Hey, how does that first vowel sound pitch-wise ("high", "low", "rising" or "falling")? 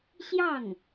falling